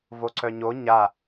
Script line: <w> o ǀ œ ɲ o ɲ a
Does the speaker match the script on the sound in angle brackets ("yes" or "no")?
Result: no